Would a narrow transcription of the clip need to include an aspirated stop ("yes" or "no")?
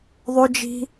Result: no